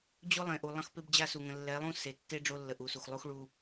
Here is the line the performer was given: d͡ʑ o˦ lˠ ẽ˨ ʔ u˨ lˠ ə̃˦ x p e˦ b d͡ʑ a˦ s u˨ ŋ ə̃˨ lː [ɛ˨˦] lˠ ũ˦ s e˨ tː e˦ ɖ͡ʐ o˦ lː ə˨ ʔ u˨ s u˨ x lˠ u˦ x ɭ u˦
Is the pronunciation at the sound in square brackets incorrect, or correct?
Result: correct